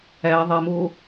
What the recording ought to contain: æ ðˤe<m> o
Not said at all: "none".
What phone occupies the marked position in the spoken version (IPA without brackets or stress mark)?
m